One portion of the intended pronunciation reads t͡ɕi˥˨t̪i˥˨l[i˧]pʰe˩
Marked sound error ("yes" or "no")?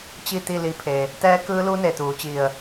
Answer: no